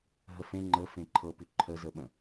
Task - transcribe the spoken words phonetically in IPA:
ɦəfẽ ŋ͡ǃə fẽǃʰɤpʉ ǃʰəzəɓə̃

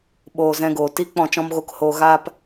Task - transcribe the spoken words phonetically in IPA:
ɓoː˨ zɛ̃˧ɡoː˨ ti˦ k͡pɔ̃˦˨t͡ʃɔ̃˦m ɣo˧khoː˧ ɣaː˦p

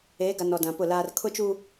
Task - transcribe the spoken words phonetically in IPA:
eː˨˦ɡa˨n ɔ˨dã˨pʊ˦˨laː˦r kʰʊ˦t͡ʃu˦

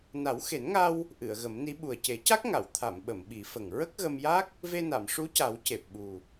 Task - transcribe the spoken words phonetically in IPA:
na˨˩˦wxe˨˩˦nŋa˧w | ʔɨ˨˩˨ə̯ɣə˨˩˦mni˧˥ ɓu˨˩ə̯ce˨˩˦ca˦˥k̚ŋa˨˩˨w t̪ʰa˨˩˨mɓə˨˩˨m ɓi˨˩˦fə˨˩ŋ ɹə˦˥k̚ɣə˧mja˦˥k̚ | ve˧na˨˩˨m ʂu˧˥ca˨˩˦w ce˨˩p̚ɓu˨˩

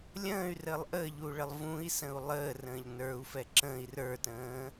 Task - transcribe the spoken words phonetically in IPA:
lʲə̃ːy̯rəːlˠ ʔəːʎuɭəlˠ vũi̯sə̃u̯ lˠəːrə̃ːʎ nə˞u̯fɛ ǁə̃ːi̯ rə˞tə̃ː

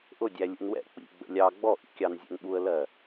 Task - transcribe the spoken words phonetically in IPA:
ʔʊdʲæ lʲṵnwɛ̰ k͡pḭɡ͡bə̰ lʲɑ ɡ͡bɔʔḭkʲɑnzʲɛ̰n ɓuə̯lɜ

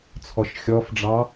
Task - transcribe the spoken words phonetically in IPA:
t͡sʰɔʃxʲɔfɖ͡ʐɑ

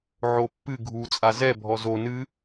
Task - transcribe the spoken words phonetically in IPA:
ʕopːɨ ɡʱu t͡sʼazɛ bʱɔzo nɨ

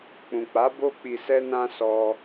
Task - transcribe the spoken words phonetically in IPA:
k͡pũ˨k͡pa˨˦ bo˦ k͡pi˧sɛ˦nã˦sɔ˧

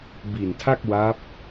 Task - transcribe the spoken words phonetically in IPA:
bi˨˩ntʰa˥˩k̚ wa˦˥p̚

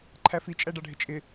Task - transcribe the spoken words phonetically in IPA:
ǃʰæfi t͡ʃʼæɖɑɖʱɪt͡ʃʼɪ

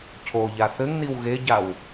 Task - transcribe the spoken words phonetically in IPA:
cʰoʎa θɘŋniw ɣeɟaw

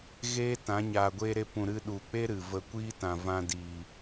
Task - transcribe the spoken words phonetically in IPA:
ɣeː˦tã˨˦ ɲaː˨ɡʷeː˧ɾe˧pũ˨ ɾɨ˧ɗu˨k͡pe˦ ɾɨ˨ və˧kʷiː˦ tã˨vã˧diː˨

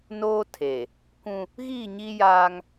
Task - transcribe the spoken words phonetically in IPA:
noː˦tʰe˨ | kʷũ˦ | ɣiː˦˨ɲi˦ jaː˦ŋ

